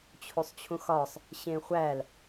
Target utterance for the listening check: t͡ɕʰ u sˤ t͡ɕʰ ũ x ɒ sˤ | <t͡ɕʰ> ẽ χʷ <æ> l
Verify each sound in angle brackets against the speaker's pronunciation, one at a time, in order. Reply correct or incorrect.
incorrect, correct

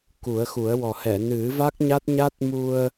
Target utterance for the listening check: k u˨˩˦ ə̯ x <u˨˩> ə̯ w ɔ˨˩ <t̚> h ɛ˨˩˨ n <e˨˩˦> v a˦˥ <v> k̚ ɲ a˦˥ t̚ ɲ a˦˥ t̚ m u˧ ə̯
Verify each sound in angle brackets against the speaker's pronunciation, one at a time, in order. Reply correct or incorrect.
incorrect, incorrect, incorrect, incorrect

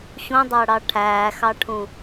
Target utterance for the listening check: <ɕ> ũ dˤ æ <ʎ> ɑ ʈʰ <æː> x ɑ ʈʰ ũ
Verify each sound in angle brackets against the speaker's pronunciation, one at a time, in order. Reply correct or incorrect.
correct, incorrect, correct

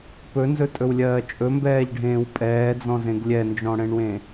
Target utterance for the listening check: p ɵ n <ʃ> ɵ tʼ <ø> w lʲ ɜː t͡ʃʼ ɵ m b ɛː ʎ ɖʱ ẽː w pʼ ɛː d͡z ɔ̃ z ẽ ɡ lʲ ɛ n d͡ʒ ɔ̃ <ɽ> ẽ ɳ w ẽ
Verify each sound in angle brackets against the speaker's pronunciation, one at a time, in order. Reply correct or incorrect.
incorrect, incorrect, correct

